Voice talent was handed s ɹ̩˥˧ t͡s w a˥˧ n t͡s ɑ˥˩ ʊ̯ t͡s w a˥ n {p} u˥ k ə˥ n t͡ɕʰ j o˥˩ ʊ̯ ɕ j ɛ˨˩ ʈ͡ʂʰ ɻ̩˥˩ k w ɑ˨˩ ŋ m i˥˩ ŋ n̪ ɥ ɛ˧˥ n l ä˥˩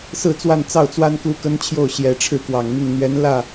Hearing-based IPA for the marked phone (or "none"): k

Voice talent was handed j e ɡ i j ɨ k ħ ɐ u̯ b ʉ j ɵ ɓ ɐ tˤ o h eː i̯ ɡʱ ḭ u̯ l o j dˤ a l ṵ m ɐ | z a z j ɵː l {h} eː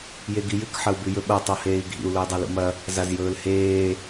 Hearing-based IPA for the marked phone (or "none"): h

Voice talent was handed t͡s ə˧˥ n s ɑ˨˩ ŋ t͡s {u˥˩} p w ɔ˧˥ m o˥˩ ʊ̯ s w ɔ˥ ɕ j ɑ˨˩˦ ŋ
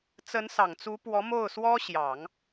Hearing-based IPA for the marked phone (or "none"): u˧˥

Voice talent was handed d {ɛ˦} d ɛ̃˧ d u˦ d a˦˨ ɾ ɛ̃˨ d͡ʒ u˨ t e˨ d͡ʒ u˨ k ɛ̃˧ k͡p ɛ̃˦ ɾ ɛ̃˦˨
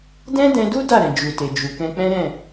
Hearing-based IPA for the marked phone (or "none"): ɛ̃˦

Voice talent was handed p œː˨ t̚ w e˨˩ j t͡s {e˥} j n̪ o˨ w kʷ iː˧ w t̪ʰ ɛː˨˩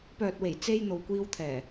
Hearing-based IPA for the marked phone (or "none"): e˧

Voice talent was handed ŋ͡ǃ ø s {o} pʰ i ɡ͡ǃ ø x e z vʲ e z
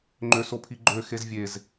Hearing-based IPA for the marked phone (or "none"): o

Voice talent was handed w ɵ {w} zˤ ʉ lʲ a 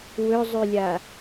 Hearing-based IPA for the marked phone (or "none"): none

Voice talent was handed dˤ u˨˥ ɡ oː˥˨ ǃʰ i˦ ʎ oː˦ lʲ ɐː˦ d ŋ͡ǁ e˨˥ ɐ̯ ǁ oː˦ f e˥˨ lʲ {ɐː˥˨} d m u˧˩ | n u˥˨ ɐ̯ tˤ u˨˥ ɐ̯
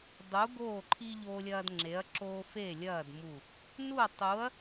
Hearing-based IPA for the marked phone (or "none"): ɐː˥˨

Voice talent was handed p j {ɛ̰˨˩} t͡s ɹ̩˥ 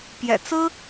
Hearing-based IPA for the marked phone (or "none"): ɛ̰˨˩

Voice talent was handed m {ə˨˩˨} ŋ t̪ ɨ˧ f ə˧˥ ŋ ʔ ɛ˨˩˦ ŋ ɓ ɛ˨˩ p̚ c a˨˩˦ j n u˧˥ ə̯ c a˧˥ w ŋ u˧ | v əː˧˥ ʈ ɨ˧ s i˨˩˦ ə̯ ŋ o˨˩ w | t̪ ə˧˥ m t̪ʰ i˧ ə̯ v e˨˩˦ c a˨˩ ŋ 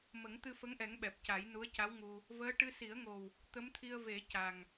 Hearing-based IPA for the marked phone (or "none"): ə˨˩˦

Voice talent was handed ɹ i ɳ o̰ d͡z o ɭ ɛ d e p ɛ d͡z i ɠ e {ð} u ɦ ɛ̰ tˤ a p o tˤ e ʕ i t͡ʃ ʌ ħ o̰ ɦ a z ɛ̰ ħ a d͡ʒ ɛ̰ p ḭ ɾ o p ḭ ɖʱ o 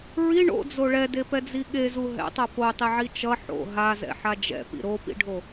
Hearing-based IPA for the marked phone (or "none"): z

